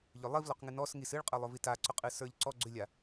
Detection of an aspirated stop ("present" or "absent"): absent